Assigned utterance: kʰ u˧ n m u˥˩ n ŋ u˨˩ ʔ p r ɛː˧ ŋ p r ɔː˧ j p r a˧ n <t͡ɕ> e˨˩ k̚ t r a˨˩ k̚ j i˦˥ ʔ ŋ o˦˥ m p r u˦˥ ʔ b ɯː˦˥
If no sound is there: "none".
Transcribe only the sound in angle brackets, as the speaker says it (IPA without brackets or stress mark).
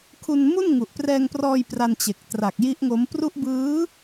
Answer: t͡ɕ